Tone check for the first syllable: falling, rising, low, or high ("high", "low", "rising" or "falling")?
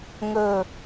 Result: low